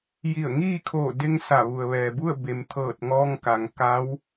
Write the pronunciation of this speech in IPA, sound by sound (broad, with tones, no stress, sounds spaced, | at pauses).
j i˧˩ ə̯ ŋ iː˥˨ kʰ oː˧˩ d e˧ ŋ s a˧˩ ʋ u˩ ə̯ ʋ ɛː˩ b u˥˨ ə̯ b e˩ m t̪ʰ ɤː˧˩ t̚ ŋ ɔː˧ ŋ k a˩ ŋ k a˧˥ w